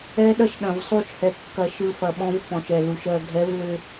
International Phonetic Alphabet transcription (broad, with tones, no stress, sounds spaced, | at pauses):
ɛ˦ ɗ ɐ˦ ʃ ɗ ɐ̃˨ v sˤ u˦˨ ʃ h ɛ˨ kː ɐ˨ ʃ ɯ˨ f ɐ˨ ɓ ɔ̃˦ v f ɔ̃˨ ʃ ɛ˨ l u˨ ʃ ɜ˨ ɡʱ ɛ˨˦ v l ʏ˨